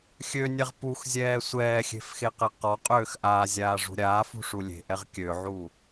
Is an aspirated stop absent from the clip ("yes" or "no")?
yes